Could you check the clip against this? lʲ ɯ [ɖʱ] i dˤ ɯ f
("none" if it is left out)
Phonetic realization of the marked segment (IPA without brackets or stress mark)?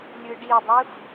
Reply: ɖ